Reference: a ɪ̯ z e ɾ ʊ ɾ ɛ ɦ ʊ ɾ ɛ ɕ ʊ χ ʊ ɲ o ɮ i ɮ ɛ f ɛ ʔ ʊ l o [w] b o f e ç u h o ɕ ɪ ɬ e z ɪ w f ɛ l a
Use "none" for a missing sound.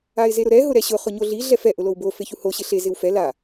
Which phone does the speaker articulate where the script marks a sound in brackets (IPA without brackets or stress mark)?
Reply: w